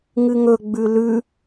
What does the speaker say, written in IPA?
ŋ ɨ ŋ ɵ ɡ͡b ʉ l ʉ

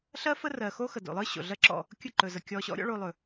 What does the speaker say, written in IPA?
ɬ ɜ˦ f ə˦ r ɜ˨ x o˦ x ə˨ d o̰˨ lˠ ɯ˦ ɕ o̰˨ ɮ ɜ˦ ǁ ɔ̰˦˨ | kʲ ɯ˦˨ ǃ ɵ˨ z ə˨ kʲ ɔ˧ ɕ ɔ̰˦ ɾʲ ɔ̰˦ ɭ o˧ lˠ ɵ˨

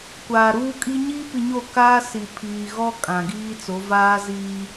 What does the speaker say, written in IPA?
kʷ aː˨ ɾ uː˦ kʼ i˦ ɲ iː˦ p i˨ ɲ o˦˨ k aː˦ s i˨ pʰ iː˨ ɣ ɔ˦ kʼ ã˨ ɡ iː˦ t͡s o˨˦ v aː˦ z iː˦

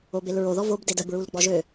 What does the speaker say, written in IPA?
o b e l ɹ o ð ɔ v o b d e d ə b ɹ u l ɡ͡b ɔ ʒ ø

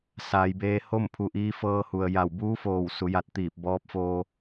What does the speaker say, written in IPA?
s aː˩˧ j b eː˧ h o˥˨ m pʰ u˧ ʔ iː˧˥ f ɤː˧ h u˩ ə̯ j a˧˩ w b uː˧˥ f oː˧˩ w s u˩˧ j a˧ t̚ t̪ iː˧˩ p̚ b ɔː˧˥ p̚ f oː˧

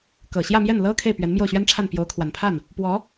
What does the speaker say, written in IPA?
k ɤ˨˩ ɕ j ä˥˧ m j ɛ˥˩ n l ɤ˥ kʰ e˥˩ ɪ̯ p ɥ ɛ˧˥ n m j o˥˩ ʊ̯ ɕ ɥ ɛ˥ n ʈ͡ʂʰ a˥˩ n p j o˧˥ ʊ̯ kʰ w a˨˩ n pʰ a˥˩ n | p w ɔ˧˥

